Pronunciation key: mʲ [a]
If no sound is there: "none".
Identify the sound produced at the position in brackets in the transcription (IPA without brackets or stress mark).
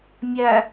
æ